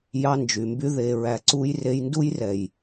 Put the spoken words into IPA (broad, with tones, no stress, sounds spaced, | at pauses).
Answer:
j ɑ˧ n d͡ʒ y˨ m b y˧ ð e˨ ɹ æ˨ ǀ u˧ j r e˧ j n d u˦ j r ɛ˨ j